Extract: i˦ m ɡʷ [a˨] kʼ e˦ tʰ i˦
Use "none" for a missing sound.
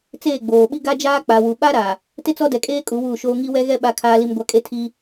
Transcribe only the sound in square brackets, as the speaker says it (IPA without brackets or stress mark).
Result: a˦